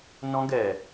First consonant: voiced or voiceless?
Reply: voiced